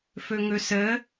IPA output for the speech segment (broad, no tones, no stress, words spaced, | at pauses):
fɵŋɵsə